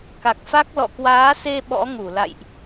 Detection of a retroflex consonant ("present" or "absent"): absent